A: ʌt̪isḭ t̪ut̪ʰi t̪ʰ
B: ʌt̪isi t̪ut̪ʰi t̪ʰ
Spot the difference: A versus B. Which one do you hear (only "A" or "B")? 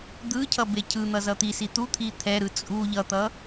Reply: B